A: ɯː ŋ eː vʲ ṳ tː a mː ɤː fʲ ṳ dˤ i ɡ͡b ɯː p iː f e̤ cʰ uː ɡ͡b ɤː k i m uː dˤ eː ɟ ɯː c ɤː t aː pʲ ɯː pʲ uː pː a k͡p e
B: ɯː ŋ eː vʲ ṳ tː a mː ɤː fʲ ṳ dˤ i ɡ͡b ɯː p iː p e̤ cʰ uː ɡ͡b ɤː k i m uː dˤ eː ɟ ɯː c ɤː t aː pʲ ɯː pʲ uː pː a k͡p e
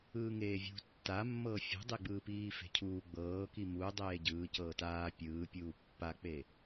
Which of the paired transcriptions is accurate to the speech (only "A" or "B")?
A